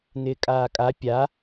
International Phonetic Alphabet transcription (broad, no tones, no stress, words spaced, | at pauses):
nɪːkʼaːkʼa pʲa